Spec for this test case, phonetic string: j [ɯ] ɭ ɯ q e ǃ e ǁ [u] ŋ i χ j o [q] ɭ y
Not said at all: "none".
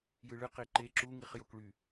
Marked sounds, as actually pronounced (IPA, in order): ɯ, u, k

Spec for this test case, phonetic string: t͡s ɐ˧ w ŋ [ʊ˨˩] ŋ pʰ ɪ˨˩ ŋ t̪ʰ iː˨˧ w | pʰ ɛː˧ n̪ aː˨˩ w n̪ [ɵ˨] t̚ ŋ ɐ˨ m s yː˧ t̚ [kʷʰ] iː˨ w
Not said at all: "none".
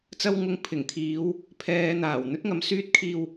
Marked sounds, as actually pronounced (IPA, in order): ʊ˧, ɵ˥, kʰ

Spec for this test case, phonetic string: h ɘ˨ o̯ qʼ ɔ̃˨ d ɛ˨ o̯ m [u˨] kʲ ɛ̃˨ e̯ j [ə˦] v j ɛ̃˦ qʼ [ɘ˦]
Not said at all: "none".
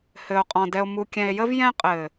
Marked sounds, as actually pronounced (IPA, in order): u˨, ə˦, ɘ˨

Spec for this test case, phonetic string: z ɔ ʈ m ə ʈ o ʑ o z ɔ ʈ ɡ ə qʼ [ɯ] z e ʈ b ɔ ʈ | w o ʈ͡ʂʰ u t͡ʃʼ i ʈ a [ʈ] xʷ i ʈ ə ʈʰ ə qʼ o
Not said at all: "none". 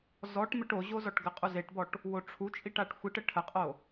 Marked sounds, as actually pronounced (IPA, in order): u, ʈ

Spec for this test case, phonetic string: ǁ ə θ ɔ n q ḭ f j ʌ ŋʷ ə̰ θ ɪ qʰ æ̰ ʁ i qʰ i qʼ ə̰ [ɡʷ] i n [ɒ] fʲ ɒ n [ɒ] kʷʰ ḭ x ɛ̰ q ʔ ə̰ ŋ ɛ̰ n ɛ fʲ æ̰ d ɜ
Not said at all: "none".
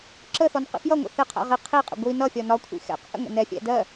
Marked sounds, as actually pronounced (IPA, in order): ɡʷ, ʌ, ɒ

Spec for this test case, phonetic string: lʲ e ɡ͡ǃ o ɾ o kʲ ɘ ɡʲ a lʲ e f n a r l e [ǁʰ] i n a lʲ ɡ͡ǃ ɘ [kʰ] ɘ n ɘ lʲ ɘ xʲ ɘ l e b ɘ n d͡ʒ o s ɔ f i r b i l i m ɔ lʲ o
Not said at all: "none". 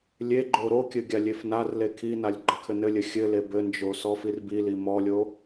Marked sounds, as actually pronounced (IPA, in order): kʰ, kʰ

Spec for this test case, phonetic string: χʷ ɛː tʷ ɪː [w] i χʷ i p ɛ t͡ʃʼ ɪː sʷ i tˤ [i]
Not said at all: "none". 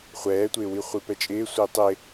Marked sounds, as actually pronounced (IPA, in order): w, ɪ

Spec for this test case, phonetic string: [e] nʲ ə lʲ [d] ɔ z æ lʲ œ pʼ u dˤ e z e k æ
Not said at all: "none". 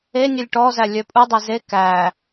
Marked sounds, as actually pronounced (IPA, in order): e, ʈ

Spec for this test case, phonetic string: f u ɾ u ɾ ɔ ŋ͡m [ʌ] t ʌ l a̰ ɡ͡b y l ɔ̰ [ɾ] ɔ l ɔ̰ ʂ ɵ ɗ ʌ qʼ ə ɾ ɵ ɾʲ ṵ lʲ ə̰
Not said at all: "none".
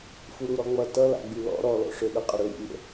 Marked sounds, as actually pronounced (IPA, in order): ʌ, ɾ

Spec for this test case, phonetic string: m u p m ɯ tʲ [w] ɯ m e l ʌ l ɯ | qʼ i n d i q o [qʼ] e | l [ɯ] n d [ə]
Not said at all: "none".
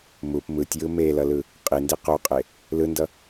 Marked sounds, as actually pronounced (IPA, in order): j, qʼ, ɯ, ʌ

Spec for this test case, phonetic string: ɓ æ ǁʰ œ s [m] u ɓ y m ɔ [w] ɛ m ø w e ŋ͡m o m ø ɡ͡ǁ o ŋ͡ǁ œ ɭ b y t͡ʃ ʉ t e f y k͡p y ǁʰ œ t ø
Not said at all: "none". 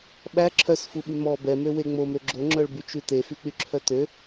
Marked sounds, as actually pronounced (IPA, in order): f, b

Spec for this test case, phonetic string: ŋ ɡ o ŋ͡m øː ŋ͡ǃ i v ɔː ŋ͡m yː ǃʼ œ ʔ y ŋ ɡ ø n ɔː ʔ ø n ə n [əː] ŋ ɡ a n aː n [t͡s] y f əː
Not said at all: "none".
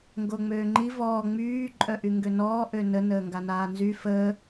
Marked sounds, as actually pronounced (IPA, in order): əː, z

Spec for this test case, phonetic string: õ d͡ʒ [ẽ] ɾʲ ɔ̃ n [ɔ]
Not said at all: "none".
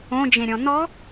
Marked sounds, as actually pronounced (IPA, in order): ẽ, ɔ

